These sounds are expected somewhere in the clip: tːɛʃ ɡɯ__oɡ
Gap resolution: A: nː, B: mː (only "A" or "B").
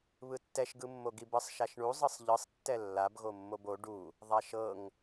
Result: B